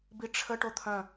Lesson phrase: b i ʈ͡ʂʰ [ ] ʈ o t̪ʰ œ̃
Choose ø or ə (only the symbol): ə